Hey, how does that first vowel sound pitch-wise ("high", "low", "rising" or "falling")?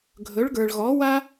rising